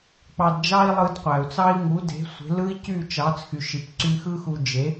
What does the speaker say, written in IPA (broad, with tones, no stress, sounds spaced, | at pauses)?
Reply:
k͡p ɑ˧ d d͡ʒ ɑ˥ i̯ lˠ ɯ˧ d qʷ æ˩ u̯ t͡s ɑ˥ i̯ ŋ u˩˥ d e̤˩˥ sʷ e̤˩˥ l ɯ˥ i̯ c y˥˩ t͡ʃ ɑ˩˥ t͡s x y˩ ʃ i˩ p ǀ y˧ x ɯ˥ x u˧ d͡ʒ e˩˥